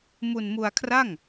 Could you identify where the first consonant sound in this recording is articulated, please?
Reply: labial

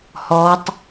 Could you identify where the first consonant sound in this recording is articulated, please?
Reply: glottal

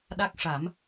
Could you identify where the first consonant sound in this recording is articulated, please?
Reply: alveolar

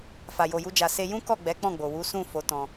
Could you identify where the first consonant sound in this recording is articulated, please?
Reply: labial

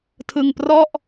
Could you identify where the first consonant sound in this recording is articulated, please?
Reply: alveolar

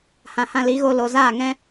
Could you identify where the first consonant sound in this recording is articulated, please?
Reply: glottal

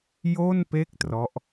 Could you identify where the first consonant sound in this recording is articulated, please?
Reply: palatal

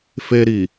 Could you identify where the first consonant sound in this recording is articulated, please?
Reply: labial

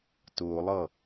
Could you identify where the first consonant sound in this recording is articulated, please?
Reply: alveolar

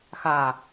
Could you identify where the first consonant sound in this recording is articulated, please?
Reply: velar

